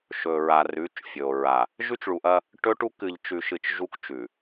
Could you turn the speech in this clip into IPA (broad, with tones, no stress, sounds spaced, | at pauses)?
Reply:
ʃ ɵ˨ ɹ a˨ r ʉ˨˦ t͡ʃ fʲ ɵ˨ o̯ ɹ a˨ | ʒ ʉ˦ t͡ʃ ɭ u˨ ʔ ɐ˦ | ʈ ɵ˦ ʈ u˦ k ɨ˨ ʎ t͡ʃ ʉ˨ ʃ ɨ˨ t͡ʃ ʒ u˦ k t͡ʃ ʉ˨